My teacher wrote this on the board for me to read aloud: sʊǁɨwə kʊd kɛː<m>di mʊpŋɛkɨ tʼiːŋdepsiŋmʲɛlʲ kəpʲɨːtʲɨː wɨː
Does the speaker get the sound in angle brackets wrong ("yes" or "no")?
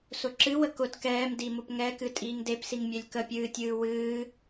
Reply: no